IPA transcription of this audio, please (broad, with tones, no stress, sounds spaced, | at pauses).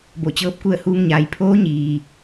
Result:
b o˧˩ t͡ɕ ɤː˧˥ p̚ k u˥˨ ə̯ h uː˧ ŋ ɲ aː˩ j pʰ oː˧˥ ɲ iː˩